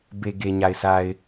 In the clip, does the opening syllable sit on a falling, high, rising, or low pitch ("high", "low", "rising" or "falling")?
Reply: low